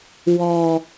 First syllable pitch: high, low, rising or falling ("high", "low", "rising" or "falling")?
low